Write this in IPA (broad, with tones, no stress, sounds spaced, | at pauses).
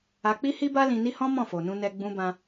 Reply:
a˧ k͡p i˦ h i˦ b a˦ l ĩ˧ n i˦ h ɔ̃˦ m ɔ̃˦˨ f o˨ n ũ˧ n ɛ˧ ɡ͡b ũ˧ b ã˧